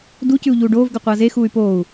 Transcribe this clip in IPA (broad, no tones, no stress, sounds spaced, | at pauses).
d u c ʉ u̯ ʎ uː ɖ oː v ɡ ɵ qʷ ɐː z e x uː y̯ p oː u̯